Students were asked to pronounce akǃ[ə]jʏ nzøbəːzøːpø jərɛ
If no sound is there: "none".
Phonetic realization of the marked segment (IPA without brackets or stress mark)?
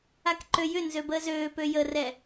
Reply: ø